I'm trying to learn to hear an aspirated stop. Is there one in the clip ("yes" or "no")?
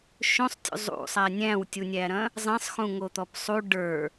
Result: no